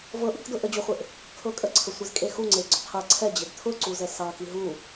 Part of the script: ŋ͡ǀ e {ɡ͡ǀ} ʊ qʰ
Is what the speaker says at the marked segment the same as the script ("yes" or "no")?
yes